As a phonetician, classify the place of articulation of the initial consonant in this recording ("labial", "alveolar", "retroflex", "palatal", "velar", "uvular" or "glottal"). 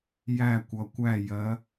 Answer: palatal